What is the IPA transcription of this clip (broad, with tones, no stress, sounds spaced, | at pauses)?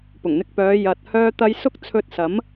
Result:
p ʊ˨˩ ŋ n̪ ɪ˧ k̚ p œː˨˧ j ɐ˨ t̚ h œː˥ t̪ ɐ˥ j s ʊ˥ k̚ t͡sʰ ɵ˧ t̚ s ɐ˨˥ m